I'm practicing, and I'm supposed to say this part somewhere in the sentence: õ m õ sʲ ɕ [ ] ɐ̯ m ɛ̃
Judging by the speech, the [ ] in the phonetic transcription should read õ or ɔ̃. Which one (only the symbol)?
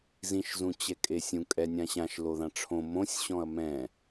ɔ̃